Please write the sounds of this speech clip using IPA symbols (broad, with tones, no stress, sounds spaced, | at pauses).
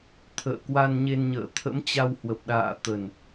t̪ʰ ə̰ː˧˨ k w a˧ n ɲ e˧ n ɲ ə̰ː˧˨ t̪ʰ ə̰˧˥ m t͡ɕ a˧ w h w ə˨˩ p̚ ɗ a̰ː˧˨ t̪ ə˨˩ n